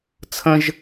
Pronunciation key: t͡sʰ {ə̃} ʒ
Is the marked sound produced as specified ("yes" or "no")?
yes